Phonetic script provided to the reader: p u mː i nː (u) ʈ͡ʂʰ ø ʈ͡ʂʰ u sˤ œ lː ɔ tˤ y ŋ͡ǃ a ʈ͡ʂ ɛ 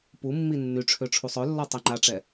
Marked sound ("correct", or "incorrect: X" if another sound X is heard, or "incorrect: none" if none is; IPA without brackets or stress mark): incorrect: y